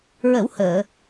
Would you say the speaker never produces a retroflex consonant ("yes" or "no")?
yes